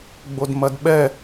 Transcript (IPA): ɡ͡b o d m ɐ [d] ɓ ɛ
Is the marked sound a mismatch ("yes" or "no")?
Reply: no